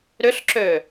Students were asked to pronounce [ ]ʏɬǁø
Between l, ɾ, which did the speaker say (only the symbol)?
ɾ